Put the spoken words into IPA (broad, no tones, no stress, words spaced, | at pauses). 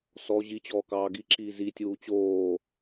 sɔ ʑit͡ɕɔː kɑːɡiǁiː zitʲuː t͡ɕoː